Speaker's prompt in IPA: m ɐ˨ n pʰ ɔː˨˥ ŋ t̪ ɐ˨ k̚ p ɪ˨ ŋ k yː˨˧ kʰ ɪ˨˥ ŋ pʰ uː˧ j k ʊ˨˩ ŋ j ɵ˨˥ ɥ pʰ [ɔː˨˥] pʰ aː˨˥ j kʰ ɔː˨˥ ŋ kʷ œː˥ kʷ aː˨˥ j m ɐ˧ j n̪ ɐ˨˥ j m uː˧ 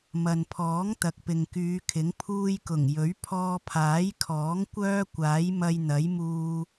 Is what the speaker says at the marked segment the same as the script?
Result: no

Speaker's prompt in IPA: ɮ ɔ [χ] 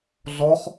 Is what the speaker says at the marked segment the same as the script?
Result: yes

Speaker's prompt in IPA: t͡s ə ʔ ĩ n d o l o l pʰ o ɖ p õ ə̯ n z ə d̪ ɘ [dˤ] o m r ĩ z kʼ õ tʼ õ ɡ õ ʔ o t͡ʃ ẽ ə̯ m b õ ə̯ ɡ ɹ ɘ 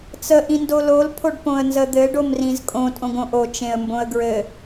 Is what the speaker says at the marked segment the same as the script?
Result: no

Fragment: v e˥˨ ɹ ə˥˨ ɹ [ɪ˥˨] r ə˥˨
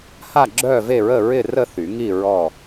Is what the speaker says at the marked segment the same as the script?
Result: yes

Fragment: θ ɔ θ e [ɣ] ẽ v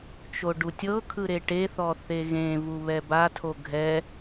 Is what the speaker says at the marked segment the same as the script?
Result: yes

